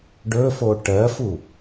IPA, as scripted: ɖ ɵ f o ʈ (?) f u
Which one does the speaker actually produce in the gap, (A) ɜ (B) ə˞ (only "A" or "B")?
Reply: A